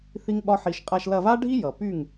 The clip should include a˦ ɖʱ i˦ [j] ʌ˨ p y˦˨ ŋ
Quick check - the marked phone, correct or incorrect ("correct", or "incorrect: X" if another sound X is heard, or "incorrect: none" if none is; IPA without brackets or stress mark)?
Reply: correct